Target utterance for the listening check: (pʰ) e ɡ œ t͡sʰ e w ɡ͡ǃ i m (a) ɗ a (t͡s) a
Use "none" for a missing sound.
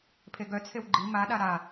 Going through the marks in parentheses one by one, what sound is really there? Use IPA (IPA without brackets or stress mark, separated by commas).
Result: pʰ, a, ɾ